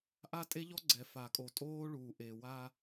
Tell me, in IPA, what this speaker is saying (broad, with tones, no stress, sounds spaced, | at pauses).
ʔ a˦ tʼ e˦ ʎ ɔ˦ ɡ͡ǀ ɛ˨ f a˨ kʼ o˨ tʼ oː˦ ɭ uː˨ ʔ e˨ w a˦